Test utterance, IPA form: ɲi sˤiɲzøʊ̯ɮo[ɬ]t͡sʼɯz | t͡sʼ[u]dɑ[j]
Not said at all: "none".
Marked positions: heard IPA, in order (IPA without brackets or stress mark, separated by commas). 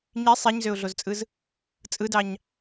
z, ɯ, ɲ